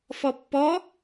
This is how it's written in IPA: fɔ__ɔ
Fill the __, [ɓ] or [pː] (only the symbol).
pː